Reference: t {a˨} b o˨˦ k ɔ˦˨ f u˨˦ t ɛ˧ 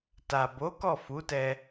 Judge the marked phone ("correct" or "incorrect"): correct